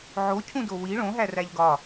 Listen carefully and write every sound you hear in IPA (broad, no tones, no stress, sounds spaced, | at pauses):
ʕ o cʰ ũ d o w i ɭ õ ɦ æ r æ ʎ ɡ ɒ